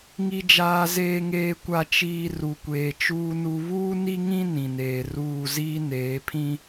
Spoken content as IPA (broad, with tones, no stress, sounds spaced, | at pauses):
ŋ i˨ d͡ʒ aː˨ z eː˨ ŋ eː˨ kʷ a˨ t͡ʃ iː˨ r u˨ kʷ eː˨ t͡ʃ uː˦ n u˦ β uː˦ n i˦ ŋ ĩ˦ n ĩ˨ n eː˨ r uː˦˨ z iː˦ n eː˨˦ pʰ ĩ˦